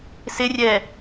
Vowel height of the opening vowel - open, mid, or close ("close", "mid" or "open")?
close